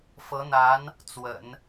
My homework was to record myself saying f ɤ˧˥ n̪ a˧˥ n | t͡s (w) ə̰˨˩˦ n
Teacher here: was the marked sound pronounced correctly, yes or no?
yes